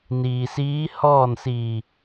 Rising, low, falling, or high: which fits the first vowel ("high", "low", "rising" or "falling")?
low